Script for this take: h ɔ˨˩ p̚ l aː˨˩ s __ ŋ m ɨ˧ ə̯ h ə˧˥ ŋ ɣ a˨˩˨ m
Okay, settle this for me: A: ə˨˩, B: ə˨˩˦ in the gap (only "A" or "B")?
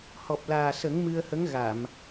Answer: B